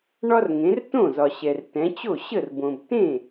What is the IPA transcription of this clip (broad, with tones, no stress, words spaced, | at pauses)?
ɳɒ˦rŋẽ˩˧rtõ˥˩ zɒ˩ɕɛ˩r tɛ̃˩˧t͡ɕo˥˩ ɕə˥˩rbõ˩b tẽ˥˩